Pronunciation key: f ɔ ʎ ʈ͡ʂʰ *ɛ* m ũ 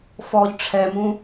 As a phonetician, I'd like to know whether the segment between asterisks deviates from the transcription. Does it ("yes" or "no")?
no